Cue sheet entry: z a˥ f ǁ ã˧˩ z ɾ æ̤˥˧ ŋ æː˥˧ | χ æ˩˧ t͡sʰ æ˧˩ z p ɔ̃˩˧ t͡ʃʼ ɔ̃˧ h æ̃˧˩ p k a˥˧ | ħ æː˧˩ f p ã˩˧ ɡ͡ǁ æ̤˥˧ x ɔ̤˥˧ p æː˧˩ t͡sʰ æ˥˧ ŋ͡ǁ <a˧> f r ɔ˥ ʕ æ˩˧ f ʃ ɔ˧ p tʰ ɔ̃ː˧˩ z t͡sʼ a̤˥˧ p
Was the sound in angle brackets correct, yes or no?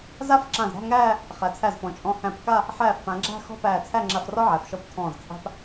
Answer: yes